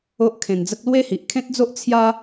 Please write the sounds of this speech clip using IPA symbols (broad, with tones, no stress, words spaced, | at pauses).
o˦ʔkʰẽ˧nd͡zə˦k̚ lwe˦hi˨ʔkʰẽ˦t̚d͡zo˦ʔ t͡sʰja˦